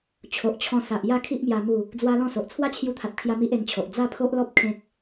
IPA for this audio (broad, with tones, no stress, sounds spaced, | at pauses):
t͡ɕʰ o˨ ʔ t͡ɕʰ ɔ̃˧ s a˨ ʔ j a˥˧ kʰ i˦ ʔ m j a˧ m u˥˧ | d͡z w a˦ l ɔ̃˥˧ s o˨ ʔ t͡sʰ w a˦ t͡ɕʰ j u˧ t̪ʰ a˨ t̚ kʰ j a˧ m i˦ ʔ e˧ n t͡ɕʰ o˨ ʔ d͡z a˥˧ pʰ o˦ ʔ l ɔ˦ p̚ kʰ ẽ˦ k̚